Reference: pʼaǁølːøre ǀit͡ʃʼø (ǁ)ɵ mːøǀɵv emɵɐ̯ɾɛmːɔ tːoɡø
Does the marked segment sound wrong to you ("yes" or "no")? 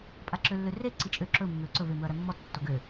no